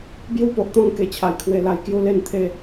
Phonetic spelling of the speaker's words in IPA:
b j u˦ p o˨ ʔ t̪ ɔ̃˧ ŋ k e˨˩ t͡ɕʰ a˨˩ j kʰ w e˧ l a˧ j k j u˦ l e˥˧ n t̪ʰ e˥˧

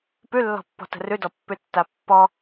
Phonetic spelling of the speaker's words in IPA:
p ʉ lː ɔ̤ pː ɔ̤ t ə̤ r ʉ d ɔ pː ʉ tː a pː ɔ

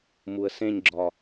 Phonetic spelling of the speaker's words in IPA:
m u ə̯ s ẽ ɲ ɡ͡ǁ ɒ

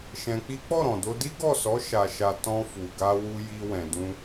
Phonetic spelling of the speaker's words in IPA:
ʃ ɛ̃˧ k͡p i˦ k͡p ɔ˦˨ ɾ ɔ̃˨ d o˧ d i˦ ɡ ɔ˦˨ s ɔ˨˦ ʃ a˧ ʃ a˧ t ɔ̃˧ f u˨ ɡ a˧ w u˧ j i˧ w ɛ̃˨ d ũ˧

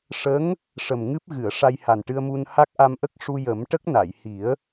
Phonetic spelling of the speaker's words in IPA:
ʂ ə˧˥ ŋ | ʂ ə˨˩ m ŋ ɨ˦˥ p̚ ɣ ɨ˨˩˨ ə̯ ʂ a˧ j h a˨˩ n ʈ ɨ˧ ə̯ m u˧ n h a˦˥ k̚ ʔ a˧ m ʔ ə˦˥ k̚ ʂ u˧ j ə˨˩˦ m ʈ ə˦˥ k̚ n a˨˩˨ j h i˨˩˦ ə̯

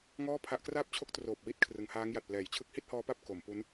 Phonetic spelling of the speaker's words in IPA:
ŋ ɔː˥˩ pʰ a˦˥ ʔ k r aː˥˩ p̚ t͡ɕʰ o˦˥ k̚ t r oː˨˩ p̚ w i˦˥ t̚ kʰ r ɯ˩˦ ŋ h aː˦˥ ŋ j a˨˩ t̚ p l ɛː˩˦ j t͡ɕʰ ɯ˦˥ k̚ h i˥˩ t̚ h ɔː˦˥ p a˥˩ p̚ k o˩˦ m p u˦˥ n

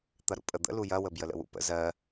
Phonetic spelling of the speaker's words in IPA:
t̪ ɐ ɾ ṵ pʼ ə d̪ ə̰ l u j ɐ w ə b j ə l ə̰ w ṵ p ə̰ z ɜ

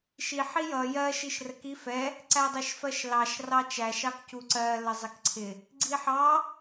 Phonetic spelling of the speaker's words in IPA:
ʃ i ħ i j ʌ j ɜ ʃ i ʃ r ə k i f ɛ | ǀ æ dˤ i ʃ f ɜ ʃ l ɑ ʃ r ɑ t͡ʃ æ ʃ ɑ k c u ǀ ɜ l ə zˤ ɪ k ǀʰ ɪ | ɡ͡ǀ i ħ ɑ

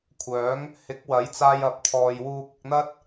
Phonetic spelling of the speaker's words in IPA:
kʷʰ œː˨˥ ŋ | h ɪ˨˥ k̚ w ɐ˨˥ j t͡s aː˧ j ɐ˨ p̚ t̪ʰ ɔː˨ j w uː˧ k̚ ɪ˧ k̚ n̪ ɐ˥ t̚

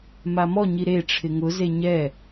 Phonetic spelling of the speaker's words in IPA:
m a m ɔ ɲ i ɾ e ʈ͡ʂʰ ɪ ŋ ʊ z e ɲ ɛ

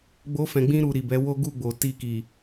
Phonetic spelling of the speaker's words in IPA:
ɡ͡b o˦ f ɛ̃˧ ɡ͡b ĩ˦ ɾ u˧ ɾ i˨ b ɛ˨˦ w o˦ ɡ u˦˨ ɡ͡b o˨ t i˧ k i˨

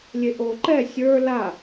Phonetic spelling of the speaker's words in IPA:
lʲ e ʔ o ǃ ɛ sʲ ə˞ l a

